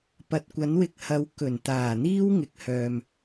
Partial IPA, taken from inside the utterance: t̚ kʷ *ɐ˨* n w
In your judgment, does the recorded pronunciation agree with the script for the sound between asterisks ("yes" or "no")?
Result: no